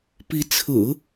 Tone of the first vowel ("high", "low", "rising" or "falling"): rising